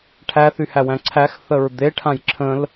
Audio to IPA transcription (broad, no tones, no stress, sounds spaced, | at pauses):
ʈʰ æ θ y h æ w æ̃ ǀʰ æ x θ ə ɹ d̪ e ʈʰ ã j ǁʰ ə̃ l